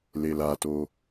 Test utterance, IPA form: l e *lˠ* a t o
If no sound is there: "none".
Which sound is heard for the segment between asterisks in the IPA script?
l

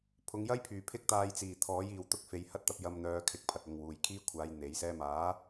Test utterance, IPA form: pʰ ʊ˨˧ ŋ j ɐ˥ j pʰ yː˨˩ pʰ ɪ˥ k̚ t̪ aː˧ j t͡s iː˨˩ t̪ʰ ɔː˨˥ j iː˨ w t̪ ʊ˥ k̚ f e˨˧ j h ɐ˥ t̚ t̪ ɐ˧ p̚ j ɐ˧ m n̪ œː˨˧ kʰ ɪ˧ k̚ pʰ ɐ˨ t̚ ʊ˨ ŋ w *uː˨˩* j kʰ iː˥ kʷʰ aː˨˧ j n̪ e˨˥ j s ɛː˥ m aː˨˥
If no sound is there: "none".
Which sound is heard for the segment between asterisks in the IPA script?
uː˨˩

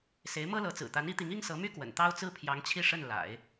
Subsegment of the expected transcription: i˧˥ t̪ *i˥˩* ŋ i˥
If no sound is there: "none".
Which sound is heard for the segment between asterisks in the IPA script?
i˧˥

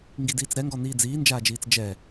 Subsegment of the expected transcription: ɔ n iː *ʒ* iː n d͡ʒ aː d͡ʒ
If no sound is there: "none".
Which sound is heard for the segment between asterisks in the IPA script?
d͡z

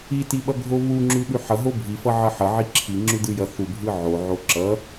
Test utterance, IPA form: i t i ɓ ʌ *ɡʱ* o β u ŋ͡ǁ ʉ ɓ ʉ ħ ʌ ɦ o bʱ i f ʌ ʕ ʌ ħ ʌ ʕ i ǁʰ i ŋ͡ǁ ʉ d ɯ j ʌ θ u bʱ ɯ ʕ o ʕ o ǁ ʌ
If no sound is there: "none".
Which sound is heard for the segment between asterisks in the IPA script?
ɡʱ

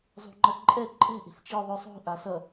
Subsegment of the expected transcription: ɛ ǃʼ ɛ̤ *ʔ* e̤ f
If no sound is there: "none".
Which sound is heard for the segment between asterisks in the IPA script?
ʔ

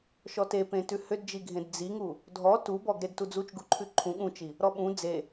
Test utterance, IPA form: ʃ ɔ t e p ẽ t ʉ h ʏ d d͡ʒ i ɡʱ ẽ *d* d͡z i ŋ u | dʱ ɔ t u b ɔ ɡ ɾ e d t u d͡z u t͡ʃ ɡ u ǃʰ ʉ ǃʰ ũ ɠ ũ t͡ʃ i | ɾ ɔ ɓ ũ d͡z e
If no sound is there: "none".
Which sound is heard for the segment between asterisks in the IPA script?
d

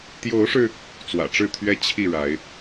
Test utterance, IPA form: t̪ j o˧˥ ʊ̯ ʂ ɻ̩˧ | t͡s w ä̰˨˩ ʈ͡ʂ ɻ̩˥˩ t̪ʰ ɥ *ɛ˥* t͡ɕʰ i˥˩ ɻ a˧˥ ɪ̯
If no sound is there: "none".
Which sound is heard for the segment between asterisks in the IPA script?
ɛ˥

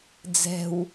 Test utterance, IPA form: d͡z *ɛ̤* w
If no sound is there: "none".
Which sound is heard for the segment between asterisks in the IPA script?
ɛ̤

